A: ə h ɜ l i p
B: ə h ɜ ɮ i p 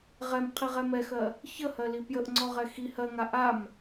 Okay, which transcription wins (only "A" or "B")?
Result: A